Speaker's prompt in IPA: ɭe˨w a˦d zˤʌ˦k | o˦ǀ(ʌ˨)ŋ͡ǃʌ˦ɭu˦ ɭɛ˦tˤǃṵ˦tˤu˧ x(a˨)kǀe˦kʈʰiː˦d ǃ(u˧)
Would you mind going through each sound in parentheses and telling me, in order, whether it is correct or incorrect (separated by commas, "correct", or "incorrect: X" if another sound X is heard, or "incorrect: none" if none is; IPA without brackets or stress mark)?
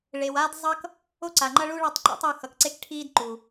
incorrect: a˨, incorrect: ʌ˨, incorrect: u˨